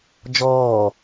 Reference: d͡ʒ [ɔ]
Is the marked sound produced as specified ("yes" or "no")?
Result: no